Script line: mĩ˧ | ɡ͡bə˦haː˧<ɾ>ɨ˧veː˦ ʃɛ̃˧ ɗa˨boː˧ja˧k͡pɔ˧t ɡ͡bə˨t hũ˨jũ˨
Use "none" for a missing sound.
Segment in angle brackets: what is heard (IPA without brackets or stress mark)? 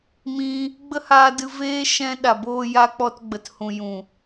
d